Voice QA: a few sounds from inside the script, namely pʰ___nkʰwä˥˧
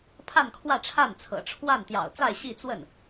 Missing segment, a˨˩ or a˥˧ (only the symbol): a˥˧